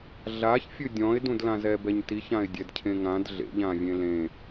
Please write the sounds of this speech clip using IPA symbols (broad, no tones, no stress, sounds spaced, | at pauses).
ɮ a ç fʲ ɨ dʲ ɔ̃ ɪ̯ d ũ d l ã z ɛ b ɛ ɲ t i ç ã ɪ̯ dʲ ɛ d cʰ ẽ ŋ ã d ɮ ḛ ʎ ã vʲ ẽ l ẽ